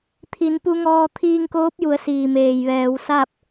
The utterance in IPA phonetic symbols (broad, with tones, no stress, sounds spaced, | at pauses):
t̪ʰ i˩˧ n p u˧ ŋ ɔː˧ t̪ʰ iː˧ ŋ k oː˧˥ p̚ j u˩˧ ə̯ s iː˩ m eː˩ j ʋ ɛː˩˧ w s a˥˨ p̚